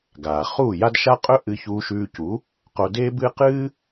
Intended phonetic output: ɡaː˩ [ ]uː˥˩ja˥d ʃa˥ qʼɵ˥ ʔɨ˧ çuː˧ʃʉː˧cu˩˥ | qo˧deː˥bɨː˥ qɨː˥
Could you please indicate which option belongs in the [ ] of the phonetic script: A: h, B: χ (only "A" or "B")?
B